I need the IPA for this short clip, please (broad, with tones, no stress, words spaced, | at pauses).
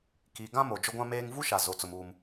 ki˨ɡã˦ mo˨d͡ʒʊ˦ɡʷã˦meː˦ŋ vu˦ ʃa˨zo˨t͡sʊ˨m uː˦m